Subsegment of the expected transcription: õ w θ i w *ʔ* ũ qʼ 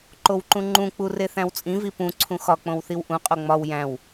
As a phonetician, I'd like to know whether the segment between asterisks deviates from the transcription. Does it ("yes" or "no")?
no